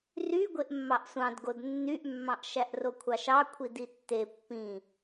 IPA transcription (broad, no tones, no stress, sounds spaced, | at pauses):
r y ɡʷ e ʔ mː ɑ ʔ sʷ ɑ̃ d ɡ o d nː y ʔ mː ɑ̃ ʔ ʃ æ ʔ r o kʷʰ ɑ ʃ ɑ kʷʰ i d i tː e pː ĩ